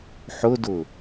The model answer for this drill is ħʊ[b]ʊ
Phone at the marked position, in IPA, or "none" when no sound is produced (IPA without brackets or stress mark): d